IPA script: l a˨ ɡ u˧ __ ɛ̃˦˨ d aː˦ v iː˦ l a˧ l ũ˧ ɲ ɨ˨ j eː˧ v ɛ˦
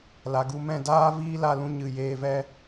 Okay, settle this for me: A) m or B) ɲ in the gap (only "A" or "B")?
A